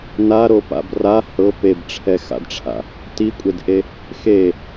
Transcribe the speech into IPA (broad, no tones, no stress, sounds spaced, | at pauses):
n a ɾ o p a̰ b r a h ɤ p e b ʈ͡ʂʰ ɛ x a̰ d ʈ͡ʂʰ a̰ | t i kʷʼ e d ʔ e | x e